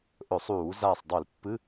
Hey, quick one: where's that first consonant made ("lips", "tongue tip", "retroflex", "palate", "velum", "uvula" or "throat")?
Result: throat